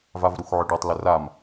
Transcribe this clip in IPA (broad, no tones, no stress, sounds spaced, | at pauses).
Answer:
v a v ɾ u x ʕ ʊ ɖ ɔ tˤ l ʊ r a m